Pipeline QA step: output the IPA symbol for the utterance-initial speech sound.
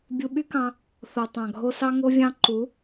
bʲ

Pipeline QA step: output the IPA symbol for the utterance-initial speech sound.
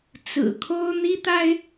t͡s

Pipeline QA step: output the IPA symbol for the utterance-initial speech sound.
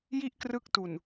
j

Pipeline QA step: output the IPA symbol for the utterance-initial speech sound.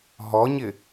ɦ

